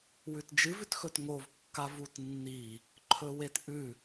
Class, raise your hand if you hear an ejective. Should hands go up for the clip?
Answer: no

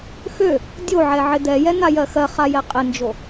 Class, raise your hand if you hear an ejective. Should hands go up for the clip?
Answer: yes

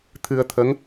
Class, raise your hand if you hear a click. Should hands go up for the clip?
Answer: no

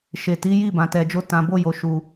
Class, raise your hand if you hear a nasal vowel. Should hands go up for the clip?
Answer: yes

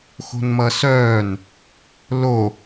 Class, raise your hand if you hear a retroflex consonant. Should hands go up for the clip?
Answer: no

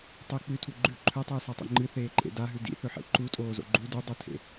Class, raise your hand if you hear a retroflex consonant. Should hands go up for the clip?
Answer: no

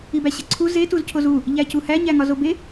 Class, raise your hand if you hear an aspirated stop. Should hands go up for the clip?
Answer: yes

